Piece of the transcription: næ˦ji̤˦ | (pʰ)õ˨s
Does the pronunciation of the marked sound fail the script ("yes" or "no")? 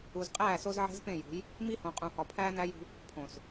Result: no